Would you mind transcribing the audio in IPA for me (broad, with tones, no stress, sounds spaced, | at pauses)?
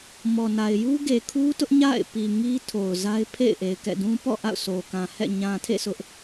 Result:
m ɔ˨ n a˨ ɪ̯ j u˦ ɡ e˨ kʰ u˦ t ʊ˦ ʔ ɲ a̰˦˨ ɪ̯ p i˨ ŋ i˦ tʰ o˨ ʊ̯ z a˦ ɪ̯ pʰ ḛ˦˨ ɪ̯ ʔ e˨ ɪ̯ k ɛ̰˦˨ d ũ˦ p ɔ̰˦˨ ʔ a̰˦˨ ʊ̯ s o˨ k ã˨ h ɛ̰˦˨ ɲ ã˨ tʰ ḛ˦˨ sʰ ʊ˦ ʔ